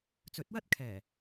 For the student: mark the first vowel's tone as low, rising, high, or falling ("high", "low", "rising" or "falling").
rising